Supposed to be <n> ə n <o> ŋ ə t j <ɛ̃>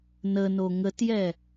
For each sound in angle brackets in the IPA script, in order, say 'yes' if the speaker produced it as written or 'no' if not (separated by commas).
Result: yes, yes, no